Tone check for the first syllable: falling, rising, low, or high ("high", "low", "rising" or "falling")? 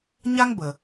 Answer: high